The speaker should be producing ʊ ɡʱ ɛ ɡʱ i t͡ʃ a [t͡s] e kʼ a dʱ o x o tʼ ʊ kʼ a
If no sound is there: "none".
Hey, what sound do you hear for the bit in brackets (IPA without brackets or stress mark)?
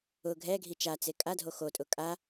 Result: t͡s